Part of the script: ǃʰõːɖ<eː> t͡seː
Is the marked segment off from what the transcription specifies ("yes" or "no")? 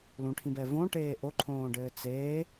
yes